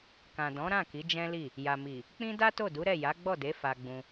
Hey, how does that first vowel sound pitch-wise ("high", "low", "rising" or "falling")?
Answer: low